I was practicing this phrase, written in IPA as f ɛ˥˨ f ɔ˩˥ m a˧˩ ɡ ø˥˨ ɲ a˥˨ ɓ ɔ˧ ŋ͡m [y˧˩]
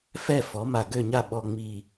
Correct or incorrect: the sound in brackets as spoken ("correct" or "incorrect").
incorrect